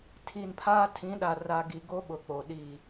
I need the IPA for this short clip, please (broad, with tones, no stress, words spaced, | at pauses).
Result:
tʰi˨npʰaː˦ tʰĩ˨˦ɗa˨ ra˨ ɡi˨ɡo˦ ɓʊ˨k͡poː˨ɗi˦˨